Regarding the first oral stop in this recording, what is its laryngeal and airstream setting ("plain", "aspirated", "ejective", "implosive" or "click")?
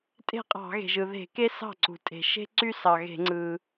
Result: ejective